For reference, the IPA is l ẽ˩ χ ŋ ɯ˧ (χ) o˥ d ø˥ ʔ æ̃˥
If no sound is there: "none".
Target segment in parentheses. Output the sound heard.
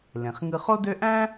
χ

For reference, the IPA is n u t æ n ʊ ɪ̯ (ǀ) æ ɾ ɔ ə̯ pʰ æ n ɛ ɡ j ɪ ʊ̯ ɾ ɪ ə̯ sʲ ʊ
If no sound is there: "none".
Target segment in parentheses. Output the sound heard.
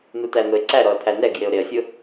ǀ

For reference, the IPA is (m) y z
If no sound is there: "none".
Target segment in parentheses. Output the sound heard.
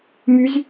m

